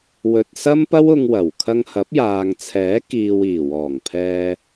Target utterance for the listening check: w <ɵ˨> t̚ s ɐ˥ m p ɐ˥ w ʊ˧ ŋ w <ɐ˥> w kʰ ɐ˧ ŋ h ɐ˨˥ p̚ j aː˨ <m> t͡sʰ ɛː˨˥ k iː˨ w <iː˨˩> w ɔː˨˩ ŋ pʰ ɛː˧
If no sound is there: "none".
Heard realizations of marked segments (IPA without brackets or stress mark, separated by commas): ɵ˨, ɐ˨˩, ŋ, iː˨˩